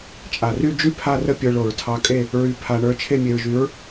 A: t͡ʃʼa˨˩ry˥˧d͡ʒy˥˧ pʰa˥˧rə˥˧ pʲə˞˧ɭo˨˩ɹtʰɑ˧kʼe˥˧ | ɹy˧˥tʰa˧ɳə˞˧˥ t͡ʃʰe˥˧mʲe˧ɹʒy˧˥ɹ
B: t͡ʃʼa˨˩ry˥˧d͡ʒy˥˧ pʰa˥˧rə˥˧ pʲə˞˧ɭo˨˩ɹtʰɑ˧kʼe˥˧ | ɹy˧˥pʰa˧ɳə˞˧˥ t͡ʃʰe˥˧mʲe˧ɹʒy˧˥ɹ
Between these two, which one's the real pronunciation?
B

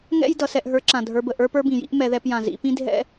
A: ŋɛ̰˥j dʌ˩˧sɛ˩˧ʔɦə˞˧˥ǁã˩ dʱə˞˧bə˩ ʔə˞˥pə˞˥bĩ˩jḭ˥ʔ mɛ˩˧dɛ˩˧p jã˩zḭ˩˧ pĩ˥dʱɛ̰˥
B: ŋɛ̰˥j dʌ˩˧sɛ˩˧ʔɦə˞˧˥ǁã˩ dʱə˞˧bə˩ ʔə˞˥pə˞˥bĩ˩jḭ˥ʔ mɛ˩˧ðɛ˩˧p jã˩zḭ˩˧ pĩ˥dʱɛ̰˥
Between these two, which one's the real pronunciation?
B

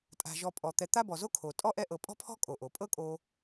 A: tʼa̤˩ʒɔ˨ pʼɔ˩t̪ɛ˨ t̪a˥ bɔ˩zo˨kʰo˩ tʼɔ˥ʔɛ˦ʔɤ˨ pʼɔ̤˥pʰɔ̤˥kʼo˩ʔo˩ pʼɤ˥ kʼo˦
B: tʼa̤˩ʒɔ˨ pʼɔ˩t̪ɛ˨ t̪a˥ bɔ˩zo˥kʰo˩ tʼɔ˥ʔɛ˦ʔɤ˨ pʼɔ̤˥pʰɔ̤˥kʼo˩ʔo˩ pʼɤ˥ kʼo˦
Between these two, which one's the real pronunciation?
B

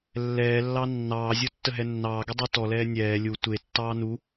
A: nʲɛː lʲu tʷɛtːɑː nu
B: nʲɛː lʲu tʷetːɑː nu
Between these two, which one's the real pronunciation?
B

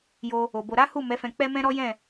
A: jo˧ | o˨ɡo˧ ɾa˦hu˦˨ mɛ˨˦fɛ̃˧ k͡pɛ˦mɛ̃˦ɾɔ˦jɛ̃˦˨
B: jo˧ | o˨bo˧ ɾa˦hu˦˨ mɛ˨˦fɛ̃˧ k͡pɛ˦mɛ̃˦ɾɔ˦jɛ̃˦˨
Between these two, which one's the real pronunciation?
B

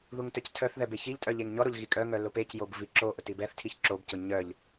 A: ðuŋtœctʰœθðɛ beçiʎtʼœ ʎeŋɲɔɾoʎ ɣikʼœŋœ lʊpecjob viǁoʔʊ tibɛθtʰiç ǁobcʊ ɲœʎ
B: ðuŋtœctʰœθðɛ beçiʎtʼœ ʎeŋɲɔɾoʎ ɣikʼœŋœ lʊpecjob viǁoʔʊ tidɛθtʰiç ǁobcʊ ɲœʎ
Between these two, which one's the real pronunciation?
A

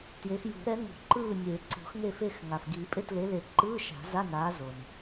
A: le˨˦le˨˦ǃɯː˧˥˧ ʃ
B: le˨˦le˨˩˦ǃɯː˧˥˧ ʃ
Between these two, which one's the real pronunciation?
B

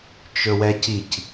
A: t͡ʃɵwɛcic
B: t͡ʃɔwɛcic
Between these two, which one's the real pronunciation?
A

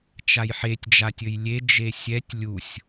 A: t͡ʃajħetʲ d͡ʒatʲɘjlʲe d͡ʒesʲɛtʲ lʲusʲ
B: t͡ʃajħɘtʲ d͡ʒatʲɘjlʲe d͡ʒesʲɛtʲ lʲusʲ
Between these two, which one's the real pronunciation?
A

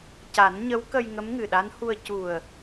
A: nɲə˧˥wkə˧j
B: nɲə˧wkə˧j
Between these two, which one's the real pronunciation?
A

